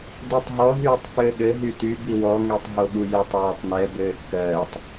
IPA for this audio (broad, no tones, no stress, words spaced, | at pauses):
dutˤɦɔ ɦyːtˤfɘːɠɘ ɦyty biwɔ ŋetˤɦoɠujetˤ wɘːtˤnɛ bɘːkːɜːtˤ